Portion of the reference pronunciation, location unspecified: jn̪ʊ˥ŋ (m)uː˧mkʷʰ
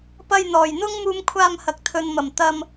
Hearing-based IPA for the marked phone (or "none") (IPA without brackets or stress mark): m